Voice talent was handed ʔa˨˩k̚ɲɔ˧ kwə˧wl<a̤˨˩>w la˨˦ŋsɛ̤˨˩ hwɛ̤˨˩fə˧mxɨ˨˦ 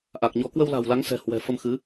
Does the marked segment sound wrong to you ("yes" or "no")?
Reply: no